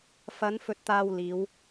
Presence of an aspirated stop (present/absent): absent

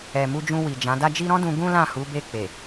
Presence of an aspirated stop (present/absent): absent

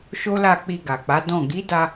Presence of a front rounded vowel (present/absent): absent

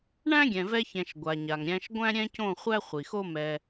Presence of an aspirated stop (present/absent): absent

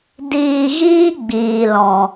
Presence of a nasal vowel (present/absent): present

